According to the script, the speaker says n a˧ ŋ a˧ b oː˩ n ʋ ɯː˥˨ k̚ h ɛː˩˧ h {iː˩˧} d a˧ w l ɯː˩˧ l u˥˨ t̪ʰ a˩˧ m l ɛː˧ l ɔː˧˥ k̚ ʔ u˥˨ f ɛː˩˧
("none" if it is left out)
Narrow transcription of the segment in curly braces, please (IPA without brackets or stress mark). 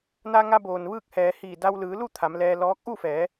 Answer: iː˧˩